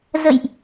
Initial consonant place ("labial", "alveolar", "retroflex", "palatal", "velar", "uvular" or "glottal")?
alveolar